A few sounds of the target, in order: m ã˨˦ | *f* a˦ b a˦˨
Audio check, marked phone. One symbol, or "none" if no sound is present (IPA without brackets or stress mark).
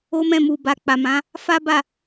f